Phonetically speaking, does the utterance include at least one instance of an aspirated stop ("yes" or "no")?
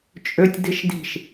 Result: no